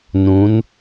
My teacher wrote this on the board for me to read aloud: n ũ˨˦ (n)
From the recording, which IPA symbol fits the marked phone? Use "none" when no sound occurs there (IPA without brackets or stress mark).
n